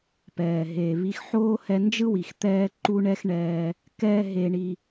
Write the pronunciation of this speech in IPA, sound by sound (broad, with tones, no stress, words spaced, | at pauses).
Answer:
pɛː˩ɦe˩ βi˧x ħoː˥ hɛ˧nd͡ʒɯ˥wi˩x t̪ɛː˥ǃu˥ ɳɛ˥xɳɛː˧ | kɛː˥ɦe˧ɳi˧